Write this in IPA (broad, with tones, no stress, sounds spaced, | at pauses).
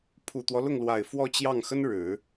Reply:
pʰ u˨˩ t̪ w ɔ˦ l ʊ˥˩ ŋ l w a˨˩ ɪ̯ f w ɔ˥˧ t͡ɕ j ɑ˥˩ ŋ x ə˥ n ɻ ɻ̩˨˩˦